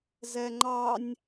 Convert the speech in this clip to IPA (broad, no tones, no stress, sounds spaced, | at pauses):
z ɛ ŋ͡ǃ ɑ nʲ